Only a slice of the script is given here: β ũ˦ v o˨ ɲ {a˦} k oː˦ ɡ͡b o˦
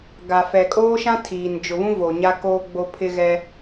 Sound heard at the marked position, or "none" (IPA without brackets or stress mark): a˦